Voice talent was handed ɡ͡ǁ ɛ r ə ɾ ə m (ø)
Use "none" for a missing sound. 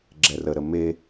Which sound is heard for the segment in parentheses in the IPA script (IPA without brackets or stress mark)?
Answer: e